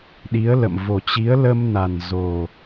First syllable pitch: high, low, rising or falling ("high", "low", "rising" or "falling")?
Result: rising